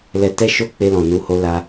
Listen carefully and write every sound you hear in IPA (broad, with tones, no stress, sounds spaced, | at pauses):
l ɛ˧ t ɛ˦ ʃ o˦ k͡p e˧ l ɔ̃˨ n u˨˦ h o˧ l a˧